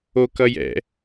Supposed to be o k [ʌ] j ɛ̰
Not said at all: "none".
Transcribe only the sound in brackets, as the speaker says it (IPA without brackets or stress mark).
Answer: ʌ